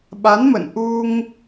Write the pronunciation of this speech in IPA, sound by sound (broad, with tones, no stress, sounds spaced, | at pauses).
ɓ a˨˦ n m ə̰˧˨ n ʔ u˧ ŋ